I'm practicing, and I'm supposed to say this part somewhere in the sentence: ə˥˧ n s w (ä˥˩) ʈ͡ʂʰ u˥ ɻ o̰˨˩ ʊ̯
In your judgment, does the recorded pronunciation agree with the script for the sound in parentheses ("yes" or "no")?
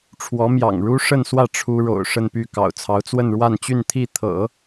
yes